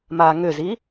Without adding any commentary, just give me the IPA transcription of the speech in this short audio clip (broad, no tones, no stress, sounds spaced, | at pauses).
m aː ŋ ʏ z i